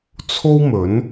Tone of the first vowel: high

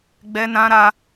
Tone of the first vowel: high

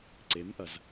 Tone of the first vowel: rising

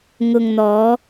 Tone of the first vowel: low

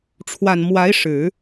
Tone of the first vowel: low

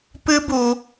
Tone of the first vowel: high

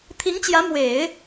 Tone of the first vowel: rising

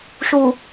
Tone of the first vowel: low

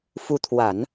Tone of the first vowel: rising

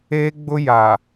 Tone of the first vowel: high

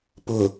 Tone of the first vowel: low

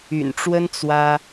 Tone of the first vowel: low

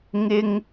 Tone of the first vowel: high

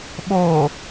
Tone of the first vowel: low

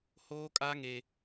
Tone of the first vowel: high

